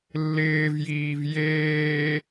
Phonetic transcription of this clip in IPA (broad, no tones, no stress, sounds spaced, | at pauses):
lː ɪː v j iː v j eː